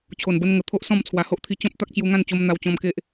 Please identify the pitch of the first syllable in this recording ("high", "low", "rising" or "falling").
low